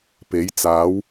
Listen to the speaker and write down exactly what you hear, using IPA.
p e˨˥ j t͡s aː˨˥ w

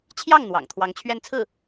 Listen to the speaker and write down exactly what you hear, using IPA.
t͡ɕʰ j ɑ˥˩ ŋ n̪ w ɑ̰˨˩ ŋ t̪ʰ w ɑ˧˥ ŋ t͡ɕʰ ɥ ɛ˥˧ n t͡sʰ ɹ̩˥˩

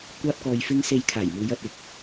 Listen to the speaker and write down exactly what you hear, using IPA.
kʷ aː˥ p̚ k ɔː˧ j f ɪ˥ ŋ s e˧ j kʰ aː˨˩ j m uː˨˧ j ɐ˨ t̚ ɪ˧ k̚

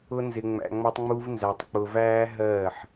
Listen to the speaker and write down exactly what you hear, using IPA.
ʊ˦ n z ɪ˧ ŋ͡m æ̰˧ ŋ͡m ɔ˦ tˤ ŋ͡m u˦ v n z æ˧ tˤ k͡p ʊ˧ v æː˦ ɦ ɜː˦˨ ħ

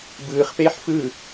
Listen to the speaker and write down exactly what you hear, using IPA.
b ɯː χ p eː ħ f ɯ

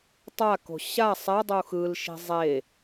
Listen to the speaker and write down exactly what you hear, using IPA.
tˤ a k o̤ ɕ a sˤ ɛ dˤ u x ɯ l ʃ i̤ zˤ e

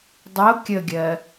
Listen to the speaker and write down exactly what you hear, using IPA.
dˤ o kʲ ə ɡʲ ɜ

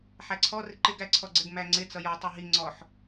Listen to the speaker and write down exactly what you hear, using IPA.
ħ æ ǀʰ ɔ r ɪ ǃ ɪ ɡ æ ǀʰ ɔ ɡ͡ǀ ɪ ɡ m æ ŋ͡ǀ ɪ t͡s ʌ j ɔ tˤ u ɦ i ŋ͡ǀ ɔ ħ

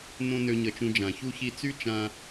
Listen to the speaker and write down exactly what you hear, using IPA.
n õ˧ n ø˦ ɲ ə˦ t͡ʃ ũ˦ d͡ʒ ã˨ ç u˧ ç i˧ t͡s y˦ t͡ʃ ã˧

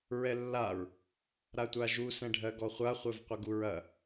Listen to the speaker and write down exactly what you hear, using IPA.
ɹ ɛ lː a ɹ | ɾ a tʷ a ʒ u s ɛ̃ ɖʱ ɜ ɡ ɔ χʷ a χʷ ɛ v qʷ ə ɡ u ɹ ɐ

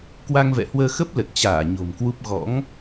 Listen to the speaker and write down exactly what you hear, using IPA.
k w a˧ ŋ v ɛ̰˧˨ h w əː˧ x ə˦˥ p̚ l ə˨˩ t̚ t͡ɕ aː˧˩ ɲ o̤˨˩ m k w u˦˥ p̚ ɣ ɔ̰˧˥ ŋ

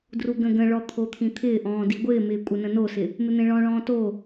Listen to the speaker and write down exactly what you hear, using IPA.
d r u ɡ ə̃ ɡ ə̃ ɭ ɔ t̪ʰ o t̪ʰ ĩ t̪ʰ ɪː ʔ ɔ̃ː d i ɡʷ ɪː m ɪː kʷʼ ə n ə̃ n o s ɪ | m ɪ n̪ ẽ ɭ ɔ̃ ɭ ɔ̃ː t o

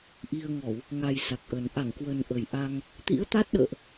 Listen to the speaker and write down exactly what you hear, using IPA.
ʔ i˧ ə̯ ŋ ɔ˧˩˨ w | ŋ a˨˩ j s a˨˩ k̚ ʔ ə˨˩ n ʔ a˧˩ ŋ k w ə˨˩ n ʔ ə˨˩ j ʔ a˧ ŋ | t̪ ḭ˧˥ ə̯ t̪ a˦˥ t̚ ɗ ə̰ː˧˨ ʔ

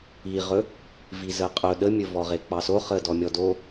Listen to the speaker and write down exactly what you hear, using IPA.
i ʁ ɵ | v i z ə qʼ ɵ ɗ ə mʲ ɵ v ɔ ʁ e k͡p ɑ s o χ ə d ɔ mʲ ɔ d o

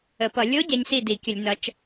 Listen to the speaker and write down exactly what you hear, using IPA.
ə˧˩˧ p ʌ˧˩˧ lʲ o˧˥ ɟ ɛ˧˥ ɲ s i˥˩ d i˧˩˧ kʲ ə˧˩˧ lʲ n ʌ˩˧ t͡ʃ

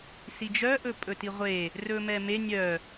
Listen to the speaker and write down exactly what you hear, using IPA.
s i d͡ʒ œ ʔ ɵ pʼ ɵ t i ʁʷ e | r ɵ m ɛ m e nʲ œ

